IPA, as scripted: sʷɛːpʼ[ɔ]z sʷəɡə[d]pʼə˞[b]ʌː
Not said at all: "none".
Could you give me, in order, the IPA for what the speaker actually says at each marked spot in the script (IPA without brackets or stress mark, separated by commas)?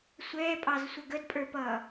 ɑ, d, p